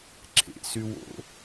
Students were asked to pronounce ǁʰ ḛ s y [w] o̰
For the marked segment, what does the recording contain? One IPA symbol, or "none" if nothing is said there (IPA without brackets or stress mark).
w